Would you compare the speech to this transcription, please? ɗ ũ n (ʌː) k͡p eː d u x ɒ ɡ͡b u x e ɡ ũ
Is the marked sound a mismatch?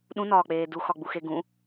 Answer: yes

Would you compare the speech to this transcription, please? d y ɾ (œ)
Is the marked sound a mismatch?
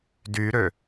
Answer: yes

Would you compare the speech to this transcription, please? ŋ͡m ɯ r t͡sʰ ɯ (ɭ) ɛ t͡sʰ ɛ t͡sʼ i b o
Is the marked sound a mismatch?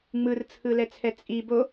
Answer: yes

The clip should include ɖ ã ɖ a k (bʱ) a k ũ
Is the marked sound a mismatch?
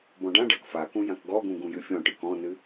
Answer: yes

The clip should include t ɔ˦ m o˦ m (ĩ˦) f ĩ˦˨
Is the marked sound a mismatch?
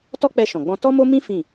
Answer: no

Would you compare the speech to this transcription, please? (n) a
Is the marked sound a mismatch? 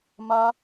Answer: yes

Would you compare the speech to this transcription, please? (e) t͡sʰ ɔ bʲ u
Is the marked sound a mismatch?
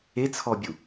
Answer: no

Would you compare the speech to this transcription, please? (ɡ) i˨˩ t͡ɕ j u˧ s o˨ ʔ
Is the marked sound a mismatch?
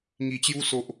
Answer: yes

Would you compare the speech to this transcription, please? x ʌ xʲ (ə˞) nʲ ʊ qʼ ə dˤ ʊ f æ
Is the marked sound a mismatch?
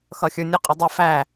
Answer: no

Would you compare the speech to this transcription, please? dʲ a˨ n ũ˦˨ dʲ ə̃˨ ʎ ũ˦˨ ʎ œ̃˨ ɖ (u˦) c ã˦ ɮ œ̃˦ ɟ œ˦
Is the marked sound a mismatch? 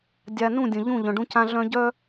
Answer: yes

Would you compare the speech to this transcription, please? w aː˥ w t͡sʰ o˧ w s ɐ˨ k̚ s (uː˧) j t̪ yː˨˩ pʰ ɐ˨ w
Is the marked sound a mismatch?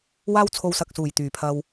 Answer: yes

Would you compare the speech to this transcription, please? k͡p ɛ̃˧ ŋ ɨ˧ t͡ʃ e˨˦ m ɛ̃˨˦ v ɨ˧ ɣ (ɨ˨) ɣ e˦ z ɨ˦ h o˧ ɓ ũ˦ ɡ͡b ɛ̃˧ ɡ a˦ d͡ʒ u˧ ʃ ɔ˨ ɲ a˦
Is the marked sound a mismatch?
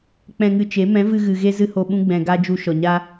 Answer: no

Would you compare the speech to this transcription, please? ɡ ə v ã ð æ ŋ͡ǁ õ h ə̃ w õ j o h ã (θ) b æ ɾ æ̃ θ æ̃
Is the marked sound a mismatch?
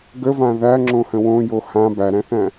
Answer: yes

